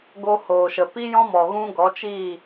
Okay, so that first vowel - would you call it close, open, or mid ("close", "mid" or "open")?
mid